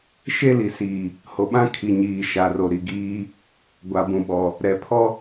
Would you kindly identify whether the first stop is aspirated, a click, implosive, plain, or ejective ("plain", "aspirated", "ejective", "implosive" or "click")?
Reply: implosive